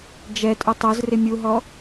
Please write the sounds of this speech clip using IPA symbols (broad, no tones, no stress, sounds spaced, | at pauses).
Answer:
d͡ʒ ɛ tʼ u tˤ o z r ɪ mʲ u ɦ ɔ